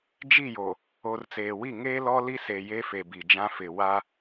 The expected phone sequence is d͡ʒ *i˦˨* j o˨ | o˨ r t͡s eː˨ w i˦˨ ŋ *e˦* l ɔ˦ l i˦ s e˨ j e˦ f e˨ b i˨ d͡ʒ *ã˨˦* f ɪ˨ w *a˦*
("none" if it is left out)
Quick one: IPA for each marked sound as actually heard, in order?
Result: i˦˨, eː˦, ã˦, a˦

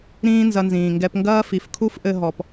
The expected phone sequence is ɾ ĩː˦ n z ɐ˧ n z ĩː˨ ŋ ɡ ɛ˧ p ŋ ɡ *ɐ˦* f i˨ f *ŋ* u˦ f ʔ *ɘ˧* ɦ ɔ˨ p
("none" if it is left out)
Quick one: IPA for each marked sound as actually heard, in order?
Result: ɐː˦, kʰ, ɘ˧

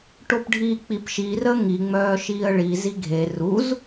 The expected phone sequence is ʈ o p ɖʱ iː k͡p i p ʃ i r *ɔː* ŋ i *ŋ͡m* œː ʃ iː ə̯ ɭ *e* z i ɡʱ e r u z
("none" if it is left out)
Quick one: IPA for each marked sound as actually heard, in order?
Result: əː, ŋ͡m, i

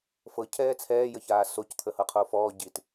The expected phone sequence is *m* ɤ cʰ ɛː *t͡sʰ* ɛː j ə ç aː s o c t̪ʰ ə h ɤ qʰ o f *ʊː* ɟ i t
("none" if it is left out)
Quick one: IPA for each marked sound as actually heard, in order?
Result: f, t͡sʰ, ɔː

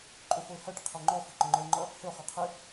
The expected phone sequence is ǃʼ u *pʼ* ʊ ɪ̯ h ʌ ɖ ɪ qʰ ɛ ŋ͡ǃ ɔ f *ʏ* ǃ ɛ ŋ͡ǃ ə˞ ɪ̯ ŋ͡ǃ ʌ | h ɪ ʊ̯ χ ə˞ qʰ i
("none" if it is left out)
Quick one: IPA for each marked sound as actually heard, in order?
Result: f, u

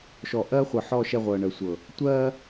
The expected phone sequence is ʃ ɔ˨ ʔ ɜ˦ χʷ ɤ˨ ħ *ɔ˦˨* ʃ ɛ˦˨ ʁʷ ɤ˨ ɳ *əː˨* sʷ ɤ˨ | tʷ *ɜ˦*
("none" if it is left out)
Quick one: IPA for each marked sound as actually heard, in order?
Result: ɔ˦˨, ə˨, ɜ˦

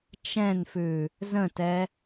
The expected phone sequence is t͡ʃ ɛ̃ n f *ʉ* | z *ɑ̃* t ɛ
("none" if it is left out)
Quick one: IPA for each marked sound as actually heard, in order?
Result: ʉ, ə̃

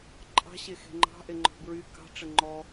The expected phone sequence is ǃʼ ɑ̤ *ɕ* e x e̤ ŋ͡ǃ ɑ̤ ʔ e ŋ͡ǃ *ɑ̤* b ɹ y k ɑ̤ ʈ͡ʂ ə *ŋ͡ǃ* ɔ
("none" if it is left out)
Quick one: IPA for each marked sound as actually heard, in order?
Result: ɕ, ɔ̤, ŋ͡ǃ

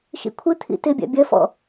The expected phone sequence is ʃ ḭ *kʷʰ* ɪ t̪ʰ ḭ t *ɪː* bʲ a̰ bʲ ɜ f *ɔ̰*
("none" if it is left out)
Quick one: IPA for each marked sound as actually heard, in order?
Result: kʷʰ, ɪ, ɔ̰

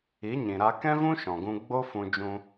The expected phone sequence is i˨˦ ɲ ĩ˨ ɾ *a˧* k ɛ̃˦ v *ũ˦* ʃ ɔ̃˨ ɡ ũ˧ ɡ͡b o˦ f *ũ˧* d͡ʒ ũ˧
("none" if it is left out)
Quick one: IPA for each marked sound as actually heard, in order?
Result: a˧, ũ˦, ũ˧

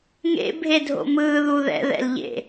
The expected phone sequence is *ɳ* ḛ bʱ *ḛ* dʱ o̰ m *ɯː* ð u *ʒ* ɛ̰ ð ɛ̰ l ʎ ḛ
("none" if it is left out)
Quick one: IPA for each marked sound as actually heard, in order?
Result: ŋ, e, ɯː, ð

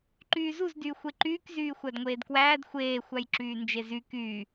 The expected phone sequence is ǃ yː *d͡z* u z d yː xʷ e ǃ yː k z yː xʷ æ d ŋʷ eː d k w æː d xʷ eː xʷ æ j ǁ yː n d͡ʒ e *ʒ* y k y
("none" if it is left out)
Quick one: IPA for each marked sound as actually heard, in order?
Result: z, z

